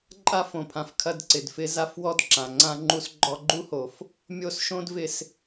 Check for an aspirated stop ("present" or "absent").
present